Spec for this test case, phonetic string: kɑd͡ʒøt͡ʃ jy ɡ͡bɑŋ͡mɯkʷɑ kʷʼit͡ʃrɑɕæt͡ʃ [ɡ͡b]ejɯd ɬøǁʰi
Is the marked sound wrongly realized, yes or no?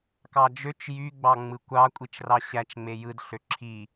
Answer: yes